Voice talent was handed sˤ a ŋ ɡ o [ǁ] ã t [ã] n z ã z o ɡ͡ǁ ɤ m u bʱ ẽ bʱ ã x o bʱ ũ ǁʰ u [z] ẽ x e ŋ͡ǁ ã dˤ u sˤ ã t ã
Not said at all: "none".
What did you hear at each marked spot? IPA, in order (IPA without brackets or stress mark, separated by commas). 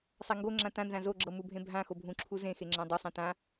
ŋ͡ǁ, ã, z